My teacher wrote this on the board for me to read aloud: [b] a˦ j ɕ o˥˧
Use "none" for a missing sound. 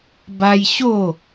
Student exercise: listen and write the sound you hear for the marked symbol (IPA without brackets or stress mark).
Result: b